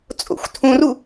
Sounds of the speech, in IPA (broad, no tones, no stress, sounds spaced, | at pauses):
t͡sʼ o̰ xʷ tʰ ũ r u